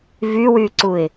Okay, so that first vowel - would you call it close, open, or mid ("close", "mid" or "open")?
close